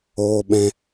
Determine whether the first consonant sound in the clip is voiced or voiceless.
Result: voiced